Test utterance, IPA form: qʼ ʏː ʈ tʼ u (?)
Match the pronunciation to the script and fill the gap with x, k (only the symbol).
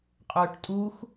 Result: x